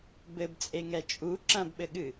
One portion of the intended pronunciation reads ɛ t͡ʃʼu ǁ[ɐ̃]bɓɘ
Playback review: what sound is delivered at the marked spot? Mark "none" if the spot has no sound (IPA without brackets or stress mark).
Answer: ɐ̃